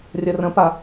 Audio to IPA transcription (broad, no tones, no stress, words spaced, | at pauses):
rʲərə̃pa